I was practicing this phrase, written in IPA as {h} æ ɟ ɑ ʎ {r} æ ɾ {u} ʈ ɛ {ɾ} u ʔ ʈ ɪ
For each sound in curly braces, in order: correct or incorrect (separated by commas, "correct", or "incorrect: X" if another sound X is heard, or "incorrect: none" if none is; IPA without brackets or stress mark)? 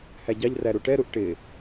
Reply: correct, correct, correct, correct